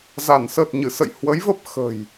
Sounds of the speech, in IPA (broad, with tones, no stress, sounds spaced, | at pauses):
z a˧˩ n s əː˨˩ t̚ ɲ ɨ˧˩ s ə̰˧˨ j h w ə˨˦ j v ə˦˥ p̚ x ə̤˨˩ j